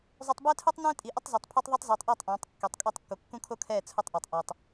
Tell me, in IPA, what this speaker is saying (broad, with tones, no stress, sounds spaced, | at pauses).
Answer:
zˤ u˨ tˤ b ɛ˦ tʰ u˦ tˤ n ɛ̃ː˦ tʼ i˨ ʔ ʊ˦ tˤ z o˨ tˤ pʰ o˦ tˤ ðˤ e˦ tˤ z eː˨ tˤ ʔ ɛ˦˨ tˤ ʔ ɛ̃ː˨˦ tˤ kː e˨ tˤ kʼ ɛ˦˨ tˤ kː o˨ kː ũ˦ kʰ o˦ kʰ ɛː˦˨ t͡sʰ ʊ˦ tˤ ʔ o˨ tˤ ʔ ɛː˨ tˤ